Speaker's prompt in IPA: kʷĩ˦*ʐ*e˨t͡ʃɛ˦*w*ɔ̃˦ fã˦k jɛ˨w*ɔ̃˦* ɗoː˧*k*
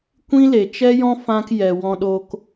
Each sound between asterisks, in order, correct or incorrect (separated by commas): incorrect, incorrect, incorrect, correct